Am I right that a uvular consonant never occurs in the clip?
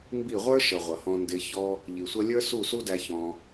no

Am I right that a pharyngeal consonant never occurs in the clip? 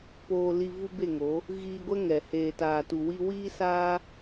yes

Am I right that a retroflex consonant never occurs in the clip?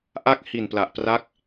yes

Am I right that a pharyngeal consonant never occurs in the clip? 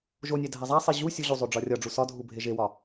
yes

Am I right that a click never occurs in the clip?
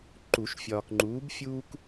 no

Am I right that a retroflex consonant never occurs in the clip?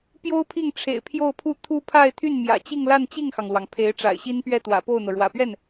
no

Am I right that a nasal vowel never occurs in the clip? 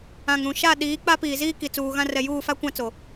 no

